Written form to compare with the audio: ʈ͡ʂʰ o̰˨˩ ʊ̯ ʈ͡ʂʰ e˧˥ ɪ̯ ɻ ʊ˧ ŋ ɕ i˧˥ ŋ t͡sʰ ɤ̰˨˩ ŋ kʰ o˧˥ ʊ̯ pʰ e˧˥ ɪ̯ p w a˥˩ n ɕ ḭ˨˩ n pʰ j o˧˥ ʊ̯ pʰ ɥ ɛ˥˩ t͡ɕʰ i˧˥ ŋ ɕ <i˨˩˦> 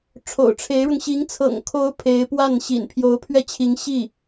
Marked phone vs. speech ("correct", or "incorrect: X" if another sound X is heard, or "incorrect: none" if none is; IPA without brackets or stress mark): incorrect: i˥˩